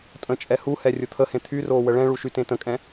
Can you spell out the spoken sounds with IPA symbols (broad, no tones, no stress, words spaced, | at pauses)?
tʼə̃t͡ʃʼɛ huhɛ rʲʊt̪ʰəhẽ t̪ʰyroː wəɭɛ̃ɭu ʃytẽtə̃kʼɛ̃